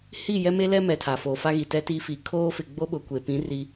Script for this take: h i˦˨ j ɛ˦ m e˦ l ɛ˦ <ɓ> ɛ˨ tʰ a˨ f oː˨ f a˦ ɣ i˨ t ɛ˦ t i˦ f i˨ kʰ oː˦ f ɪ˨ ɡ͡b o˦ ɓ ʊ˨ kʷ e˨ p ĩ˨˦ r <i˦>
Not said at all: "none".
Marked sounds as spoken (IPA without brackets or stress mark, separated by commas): m, i˦